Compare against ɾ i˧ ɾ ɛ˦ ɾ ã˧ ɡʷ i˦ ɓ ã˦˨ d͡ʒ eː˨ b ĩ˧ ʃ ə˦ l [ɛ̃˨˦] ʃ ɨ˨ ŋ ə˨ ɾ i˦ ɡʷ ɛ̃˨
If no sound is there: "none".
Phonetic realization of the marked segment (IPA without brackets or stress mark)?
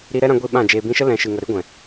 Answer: ɛ̃˨˦